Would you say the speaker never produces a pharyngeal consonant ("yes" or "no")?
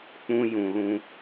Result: yes